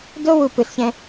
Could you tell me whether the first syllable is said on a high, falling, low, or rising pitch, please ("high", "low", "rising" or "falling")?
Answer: high